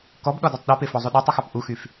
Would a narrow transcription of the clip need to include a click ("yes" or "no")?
no